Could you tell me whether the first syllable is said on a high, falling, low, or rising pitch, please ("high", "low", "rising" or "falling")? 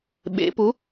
rising